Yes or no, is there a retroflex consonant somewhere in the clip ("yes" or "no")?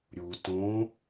no